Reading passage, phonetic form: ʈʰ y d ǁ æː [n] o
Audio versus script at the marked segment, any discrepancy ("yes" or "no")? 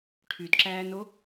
no